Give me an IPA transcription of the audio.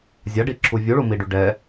zʲ a ɖ i ǁʰ u vʲ u ɭ u m i ɖ y ɖ ɛ

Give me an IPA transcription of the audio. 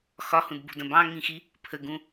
x ɒ h ũ d b ṳ d ə̃ b ɑ̃ ŋ ĩ x i | pʰ ə ɡ ũ

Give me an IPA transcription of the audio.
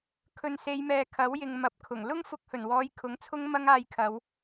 kʰ ɵ˨ n s e˨˧ j m ɛː˨ kʰ ɐ˨˥ w j ɪ˨ ŋ m ɐ˨˥ p̚ kʰ ʊ˨˩ ŋ l ʊ˥ ŋ f ʊ˧ k̚ h ɵ˨˩ n w ɔː˨˧ j kʰ ʊ˨˥ ŋ t͡sʰ ʊ˥ ŋ m ɐ˥ ŋ aː˧ j kʰ ɐ˨˧ w

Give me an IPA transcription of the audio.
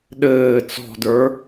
ɗ ɘː t͡s ɔ̤ d ə˞

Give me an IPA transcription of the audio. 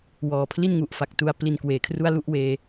w ɔː˨˩ pʰ l i˥˩ n ŋ u˨˩ ʔ f a˨˩ k̚ t u˧ a̯ p l i˧ n k w eː˨˩ kʰ r u˥˩ a̯ l u˥˩ ʔ w eː˧

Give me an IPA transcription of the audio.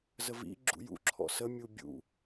z ə v ḭ ɡ͡ǁ ṵ j ṵ ǁʰ ɔ̰ s ə mʲ u bʲ ṵ

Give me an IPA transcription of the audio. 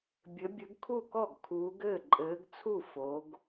bʲ ɘ˨˦ bʲ ɘ˨˦ ɡ kʰ u˥˩ k ɔ˥˩ ɡ kʰ uː˨˦ ɡ ɘː˥˩ ǃʼ ɘː˨˦ ɡ t͡sʰ u˥˩ f o˨˦ ɡ

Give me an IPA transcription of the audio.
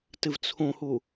t ɨ v t͡sʰ ũ h u

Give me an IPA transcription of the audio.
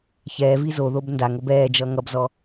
ç ɛː v i z o ð o b n d a ŋ o b ɛː d͡ʒ ʌ ŋ ʌ b z ɔ

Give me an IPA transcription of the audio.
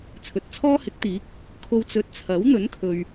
t͡sʰ ɵ˨ t̚ t͡sʰ ɔː˥ h ɪ˨˥ k̚ t̪ iː˨˥ k̚ | kʰ o˨ w t͡s ɵ˨ t̚ t͡sʰ ɐ˨˥ w n̪ ɵ˨˥ n kʰ ɵ˨ ɥ

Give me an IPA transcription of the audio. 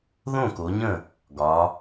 ð õ˥˨ k o˨˦ ɲ ə̃˥˨ | ɡ ɒ˨˦

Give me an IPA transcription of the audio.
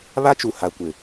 β a˦ t͡ʃ u˨ h a˨ kʷ ɪ˨

